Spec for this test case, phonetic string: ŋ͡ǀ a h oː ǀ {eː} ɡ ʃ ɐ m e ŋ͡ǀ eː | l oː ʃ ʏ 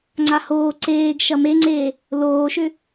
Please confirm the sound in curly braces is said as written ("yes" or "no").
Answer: yes